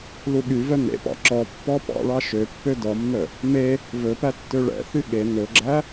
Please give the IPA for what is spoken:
l u ɠ y v œ n ḛ p ɑ̰ ǁ ɔ pː ɔ p ɑ̰ ɭ ɑ ʃ ø pː ø d ɔ mː œ | m e | v ɵ p æ tː ø ɭ ɛ̰ θ y ɠ e n ɵ ɡ͡ǁ æ

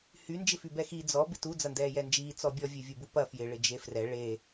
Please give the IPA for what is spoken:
h y n d͡ʒ ɪ f y b ɛ x i d͡z ɔ b ɪ t u d͡z ɐ n d ɛː j ɛ n d͡ʒ iː t͡s ɔ bʲ ɔ vʲ e vʲ u b u p ɐ f j ɪ ɭ ɪ d͡ʒ e f r ɛ ɭ e

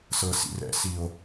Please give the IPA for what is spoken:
s ɤ˨ s ḭ˨ r ɛ̰˧ s i˨ o̯

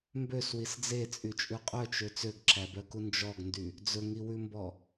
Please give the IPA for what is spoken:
m b ø s w i s d͡z e t͡sʼ y t͡ʃʼ ʉ qʼ œ t͡ʃ ø t͡s ø ɡ ǁʰ æ b œ k u n d͡ʒ ɔ ɡ n d y | d͡z ɵ ŋ i w ʉ m b ɔ

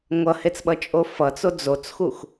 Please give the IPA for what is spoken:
ŋʷ ʌ h e t͡s ɓ ʌ t͡ʃʼ o f ʌ t͡s o d͡z o t͡s x u x

